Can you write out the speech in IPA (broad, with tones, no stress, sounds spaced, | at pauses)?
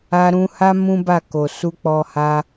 a˧ ɾ ũ˧ h a˦ m ũ˦ b a˦˨ k o˨ s u˧ k͡p ɔ˧ h a˧